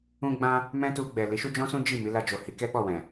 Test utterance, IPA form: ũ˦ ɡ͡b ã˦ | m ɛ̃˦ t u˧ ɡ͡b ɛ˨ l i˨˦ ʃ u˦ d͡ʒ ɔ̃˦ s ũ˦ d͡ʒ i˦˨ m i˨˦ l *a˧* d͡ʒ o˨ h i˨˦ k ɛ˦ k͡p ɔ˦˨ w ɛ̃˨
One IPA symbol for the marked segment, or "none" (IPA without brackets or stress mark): a˧